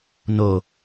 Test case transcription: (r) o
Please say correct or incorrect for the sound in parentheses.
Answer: incorrect